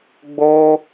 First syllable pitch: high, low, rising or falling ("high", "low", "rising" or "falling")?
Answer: high